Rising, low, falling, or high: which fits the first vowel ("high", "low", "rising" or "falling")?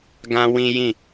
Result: high